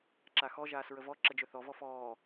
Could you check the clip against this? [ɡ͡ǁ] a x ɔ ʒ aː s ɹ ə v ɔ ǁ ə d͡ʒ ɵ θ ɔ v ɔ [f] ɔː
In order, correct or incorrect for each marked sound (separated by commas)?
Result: incorrect, correct